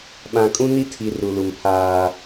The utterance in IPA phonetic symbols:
ɓã˨kʼũ˦ni˦tʰi˨ ru˨lu˨mpʰaː˦

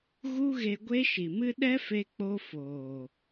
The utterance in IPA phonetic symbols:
ɣu˦ɣe˧ɡʷe˦ ʃi˨mɨ˦ ɗɛ˦fe˧k͡po˧ foː˨

